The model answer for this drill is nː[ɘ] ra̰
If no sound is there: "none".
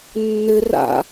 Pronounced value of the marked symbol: ɘ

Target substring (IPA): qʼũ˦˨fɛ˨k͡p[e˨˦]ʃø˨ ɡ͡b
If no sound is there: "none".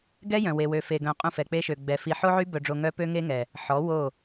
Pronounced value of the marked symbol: e˦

